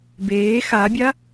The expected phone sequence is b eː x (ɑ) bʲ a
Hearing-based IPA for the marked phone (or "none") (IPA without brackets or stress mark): a